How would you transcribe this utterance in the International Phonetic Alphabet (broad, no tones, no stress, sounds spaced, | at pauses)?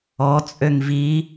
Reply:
ɔ t͡sʼ ø ŋ v i